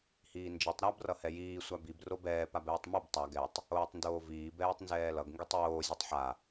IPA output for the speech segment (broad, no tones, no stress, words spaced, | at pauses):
hiːnd͡ʒitˤ ɾab rʌhɛjiː sʷabib robɛː pabɛːtˤmɛb tˤa ɡɛtˤ | oːtˤndoːviː bɛːtˤnzɛːlʌɡ ŋɡitˤjoː zʲotˤħa